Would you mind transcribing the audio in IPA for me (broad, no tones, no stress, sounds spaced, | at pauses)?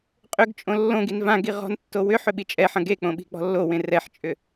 qʼ ʏ ɡ t͡ʃʼ õ lː õ ɡ i n v ã ɡ i ʁ ɔ̤ n tː o w ʏ ħ ʏ ɓ i t͡ʃʼ ɛ ħ ɐ̃ ɡ e k͡p õ ɓ i̤ k͡p ɔ̤ lː o w ẽ r ɛ ħ t͡ʃʼ ʏ